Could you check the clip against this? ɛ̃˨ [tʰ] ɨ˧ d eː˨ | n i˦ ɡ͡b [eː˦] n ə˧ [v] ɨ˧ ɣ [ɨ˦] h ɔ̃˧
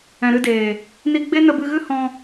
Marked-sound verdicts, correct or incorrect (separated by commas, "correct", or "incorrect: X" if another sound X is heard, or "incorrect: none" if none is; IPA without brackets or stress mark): incorrect: ɾ, incorrect: e˦, incorrect: b, correct